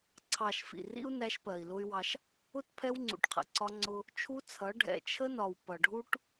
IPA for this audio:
ǀʰ ɑ˨ ʃ f ḭ˨ r ḭ˦ u̯ n æ˦ ʃ p ɜ˨ i̯ l ʊ˦ y̯ w ɑ˦ ʃ | ʊ˦ t pʰ ɛ˦ w ŋ͡ǀ ṵ˨ ʈ qʰ ə̰˨ ǀ ɒ˦ ŋ͡ǀ ʊ˦ | t͡ʃʰ u˦ t͡sʰ ʌ˨˦ ɖʱ ɛ̰˨ t͡ʃʰ ə˦ n ɒ˨ w p ʌ˨ ɖʱ u˦ ʈ

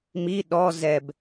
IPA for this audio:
m i ɗ ɔ z ɛ b

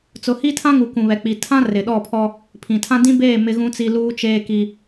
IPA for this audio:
t͡s ʊ˨ h i˦ tʰ ã˦ ŋ u˨ k ũ˨ β ɛ˨ k͡p i˨ tʰ ã˦ r ɪ˨ ɗ ɔ˦˨ pʰ ɔ˦ | pʰ ĩ˨ tʰ ã˦ d ĩ˦ b eː˦˨ m ɪ˦ ɣ ũ˦ t͡s i˦ l uː˦ t͡ʃ eː˦ k i˦

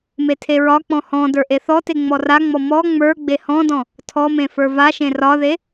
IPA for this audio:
m e tʰ e ɹ ɒ k͡p ɔ̃ h ɔ̃ d ə˞ ʔ e θ ɔ t e ŋ͡m ɔ r a ŋ͡m ɔ m ɔ ŋ͡m ə˞ ɡ͡b e h ɔ̃ d ɔ̃ | tʰ ɔ m ẽ f ə˞ v a ʃ ẽ r ɒ ð e

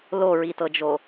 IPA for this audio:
l o ɹ i t ɤ d͡ʒ o

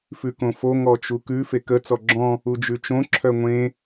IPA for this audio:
f ʉ k õ f o ŋ ɔ t͡ʃ u k ʉ f e k ə t͡s ɔ ɡ͡ǁ ɔ̃ | u d͡ʒ ʉ t͡ʃ õ ǁʰ œ ŋʷ ẽ

